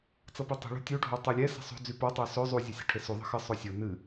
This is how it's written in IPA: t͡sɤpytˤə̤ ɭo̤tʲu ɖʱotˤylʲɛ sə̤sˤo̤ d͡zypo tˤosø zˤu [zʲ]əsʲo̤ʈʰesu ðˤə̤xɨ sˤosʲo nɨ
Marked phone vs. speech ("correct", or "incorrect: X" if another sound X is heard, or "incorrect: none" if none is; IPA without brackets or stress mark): correct